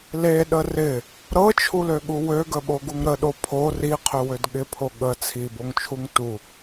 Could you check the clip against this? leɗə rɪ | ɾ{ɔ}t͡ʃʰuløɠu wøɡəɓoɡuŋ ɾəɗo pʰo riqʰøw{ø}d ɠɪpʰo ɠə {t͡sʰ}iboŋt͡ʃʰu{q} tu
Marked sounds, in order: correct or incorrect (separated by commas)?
incorrect, correct, correct, incorrect